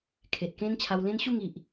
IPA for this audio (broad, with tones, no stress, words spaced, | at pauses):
kʰe˨t̚kẽ˦n t͡ɕʰa˧wlẽ˦nɕu˥˧ŋ i˨ʔ